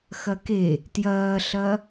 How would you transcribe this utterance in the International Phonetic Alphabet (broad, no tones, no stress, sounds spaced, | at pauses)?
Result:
x ɐ k e | t j ɐː ɬ ɐ